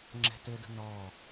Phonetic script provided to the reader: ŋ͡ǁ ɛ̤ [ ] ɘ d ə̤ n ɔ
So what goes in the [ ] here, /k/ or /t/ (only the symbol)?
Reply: t